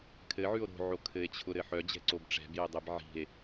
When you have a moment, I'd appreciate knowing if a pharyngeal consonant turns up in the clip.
yes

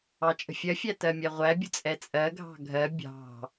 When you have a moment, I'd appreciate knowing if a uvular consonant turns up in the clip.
yes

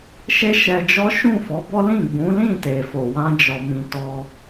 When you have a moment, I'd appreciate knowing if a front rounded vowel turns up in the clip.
no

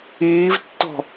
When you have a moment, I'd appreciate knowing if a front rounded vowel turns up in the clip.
no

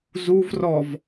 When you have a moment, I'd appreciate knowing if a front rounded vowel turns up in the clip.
no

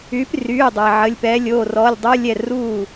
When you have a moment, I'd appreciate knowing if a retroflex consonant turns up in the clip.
no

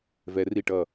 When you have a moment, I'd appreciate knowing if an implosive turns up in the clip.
no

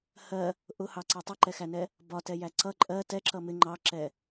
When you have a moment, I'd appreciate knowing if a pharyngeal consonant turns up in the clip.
no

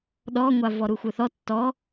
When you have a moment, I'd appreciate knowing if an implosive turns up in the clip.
yes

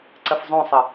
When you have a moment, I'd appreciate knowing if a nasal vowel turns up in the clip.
yes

